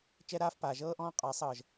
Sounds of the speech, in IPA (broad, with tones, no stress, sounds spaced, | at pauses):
t͡ʃ ɛ˦ ɾ aː˦ f p aː˨ ʒ ɤː˦ ʔ ɔ̃ː˦ qʼ aː˨˦ sˤ ɤː˨ ʒ